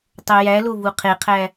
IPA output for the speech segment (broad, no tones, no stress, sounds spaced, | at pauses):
tˤ o j æ l o v u qʰ e qʰ æ